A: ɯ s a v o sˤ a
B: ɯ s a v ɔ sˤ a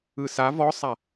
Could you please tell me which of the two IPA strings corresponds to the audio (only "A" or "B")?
B